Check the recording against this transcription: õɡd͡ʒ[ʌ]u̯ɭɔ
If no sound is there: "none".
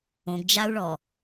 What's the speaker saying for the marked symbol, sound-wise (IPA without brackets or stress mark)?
a